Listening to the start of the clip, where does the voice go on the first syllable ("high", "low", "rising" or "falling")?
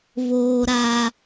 high